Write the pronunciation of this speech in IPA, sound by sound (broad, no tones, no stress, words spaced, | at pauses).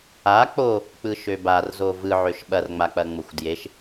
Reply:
a k͡po | k͡pɯʃøbarzo vɯʕøʃ ɓɐrŋ͡mak͡pɐŋ͡moxʷ djeʃ